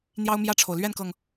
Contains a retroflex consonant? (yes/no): yes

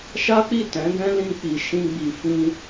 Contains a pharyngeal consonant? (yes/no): no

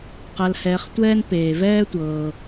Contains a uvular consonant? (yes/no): yes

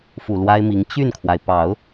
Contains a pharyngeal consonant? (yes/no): no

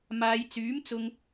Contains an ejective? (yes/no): no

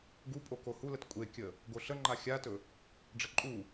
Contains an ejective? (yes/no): yes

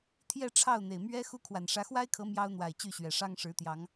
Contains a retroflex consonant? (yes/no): yes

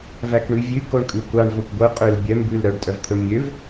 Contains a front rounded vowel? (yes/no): yes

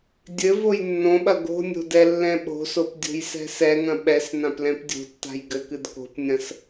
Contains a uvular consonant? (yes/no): no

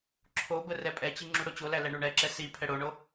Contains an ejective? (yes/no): yes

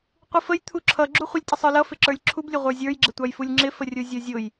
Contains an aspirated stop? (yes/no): yes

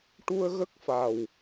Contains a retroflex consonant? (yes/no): yes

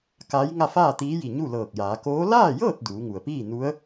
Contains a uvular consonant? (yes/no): no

